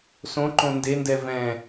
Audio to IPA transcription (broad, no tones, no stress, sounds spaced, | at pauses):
s õ ǃ õ n d e n d ɛ v ɛ̃